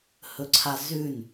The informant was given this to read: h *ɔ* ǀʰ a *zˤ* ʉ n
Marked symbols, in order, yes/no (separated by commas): no, no